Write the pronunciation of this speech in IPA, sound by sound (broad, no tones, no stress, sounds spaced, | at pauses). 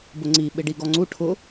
b ʊ ŋ͡ǀ i ɓ ɪ ɖ i ɡ ɔ ŋ͡ǀ u ʈʰ ʊ